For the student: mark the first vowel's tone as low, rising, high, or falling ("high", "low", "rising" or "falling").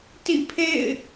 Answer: falling